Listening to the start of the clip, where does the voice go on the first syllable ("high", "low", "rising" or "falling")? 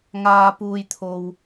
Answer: high